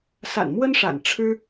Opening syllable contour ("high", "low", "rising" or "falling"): low